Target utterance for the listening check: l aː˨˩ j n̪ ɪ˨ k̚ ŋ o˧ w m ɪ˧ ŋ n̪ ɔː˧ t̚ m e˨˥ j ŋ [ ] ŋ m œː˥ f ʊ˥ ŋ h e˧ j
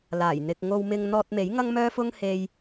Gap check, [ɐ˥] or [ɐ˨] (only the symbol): ɐ˥